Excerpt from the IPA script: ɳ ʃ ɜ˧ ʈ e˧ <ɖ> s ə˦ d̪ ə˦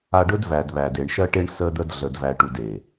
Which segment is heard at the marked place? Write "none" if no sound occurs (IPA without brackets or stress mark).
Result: ɳ